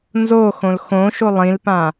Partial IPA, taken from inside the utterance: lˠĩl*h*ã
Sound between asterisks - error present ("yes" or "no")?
yes